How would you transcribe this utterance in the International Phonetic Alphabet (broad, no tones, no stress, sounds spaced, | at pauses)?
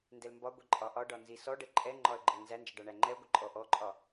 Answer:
n d ɛ l m b ɒ ɡʷ i ǃʼ ɒ ʔ ɒ ɖ ɒ n z i s ɔ ɖ ə ǃʼ ɛ ŋ͡ǃ ɒ ə̯ ɡ͡ǃ ə ŋ n z æ n d͡ʒ ə ɖ ɒ ɳ æ ŋ͡ǃ ɛ ʊ̯ ɡʷ ə ǃʼ ɔ ʔ ɔ ǃʼ ɒ